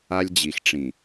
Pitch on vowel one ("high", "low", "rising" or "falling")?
high